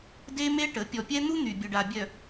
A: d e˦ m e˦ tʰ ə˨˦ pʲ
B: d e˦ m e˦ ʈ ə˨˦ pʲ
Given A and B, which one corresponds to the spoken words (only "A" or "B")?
B